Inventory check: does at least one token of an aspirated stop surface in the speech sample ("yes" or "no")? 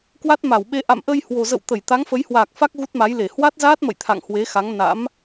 yes